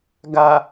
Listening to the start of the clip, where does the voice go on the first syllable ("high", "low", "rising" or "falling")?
low